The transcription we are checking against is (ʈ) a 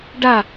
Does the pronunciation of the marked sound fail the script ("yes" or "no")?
yes